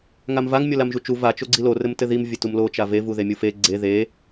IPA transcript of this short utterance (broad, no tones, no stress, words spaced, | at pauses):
ŋamvaŋ mʲolamʒut͡ʃu va t͡ʃoɡ͡ǀilo rɘmtɘðim vʲɘtumlo t͡ʃave vuðemʲufe ɡ͡ǀe ðe